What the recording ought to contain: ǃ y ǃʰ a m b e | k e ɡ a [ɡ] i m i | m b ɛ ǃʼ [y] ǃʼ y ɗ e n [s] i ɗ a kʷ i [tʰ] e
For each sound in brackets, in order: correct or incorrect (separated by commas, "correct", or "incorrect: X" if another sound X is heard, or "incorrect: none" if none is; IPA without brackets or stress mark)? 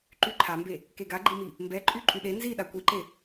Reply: incorrect: ɡ͡ǃ, correct, incorrect: z, incorrect: ǃ